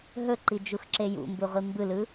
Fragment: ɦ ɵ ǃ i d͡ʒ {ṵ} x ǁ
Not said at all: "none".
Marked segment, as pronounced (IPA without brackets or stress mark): u